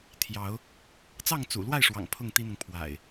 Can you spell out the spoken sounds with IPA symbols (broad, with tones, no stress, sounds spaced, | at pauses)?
t̪ʰ j ɑ˨˦ ʊ̯ | t͡s ɑ˥˨ ŋ t͡s ṵ˨˩ l w a˥˨ ɪ̯ ʂ w ɑ̰˨˩ ŋ pʰ ʊ˥˨ ŋ t̪ i˦ n̪ ʊ˨ ŋ pʰ w a̰˨˩ ɪ̯